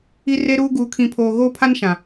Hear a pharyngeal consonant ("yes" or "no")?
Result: no